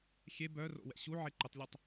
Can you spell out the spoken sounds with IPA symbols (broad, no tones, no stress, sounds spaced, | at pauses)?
xʲ e b œ r o̰ w ɛ̰ ɕ u ʕ e ǃ ə tˤ lʲ e tˤ